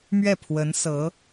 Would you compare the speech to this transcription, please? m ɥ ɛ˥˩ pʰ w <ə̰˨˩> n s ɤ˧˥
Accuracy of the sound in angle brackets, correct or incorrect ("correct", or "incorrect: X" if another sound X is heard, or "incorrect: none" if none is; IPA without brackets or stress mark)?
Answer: incorrect: ə˧˥